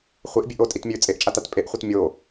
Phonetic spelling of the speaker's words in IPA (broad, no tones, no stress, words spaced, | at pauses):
χʷeʔbʲʉʔ otʼitmʲʉː t͡sʼeʔt͡ʃʼatat pʼeʔχʷet mʲo